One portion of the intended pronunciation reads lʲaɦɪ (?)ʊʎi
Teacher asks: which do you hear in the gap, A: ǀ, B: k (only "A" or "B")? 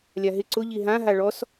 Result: A